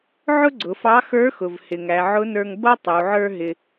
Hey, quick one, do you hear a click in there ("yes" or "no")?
yes